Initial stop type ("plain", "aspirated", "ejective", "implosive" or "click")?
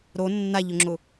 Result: click